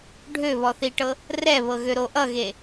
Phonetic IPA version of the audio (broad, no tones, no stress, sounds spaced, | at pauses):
ɖʱ ø β ɔ θ i ʈ ɤ | r ɛ β ɤ ɣ ø ɾ o ʔ ʌ ɣ e